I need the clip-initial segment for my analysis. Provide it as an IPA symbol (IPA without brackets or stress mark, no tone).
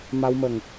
m